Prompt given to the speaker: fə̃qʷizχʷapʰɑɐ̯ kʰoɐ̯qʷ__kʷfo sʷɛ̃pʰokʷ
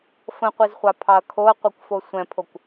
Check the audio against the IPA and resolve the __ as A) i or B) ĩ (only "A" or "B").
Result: A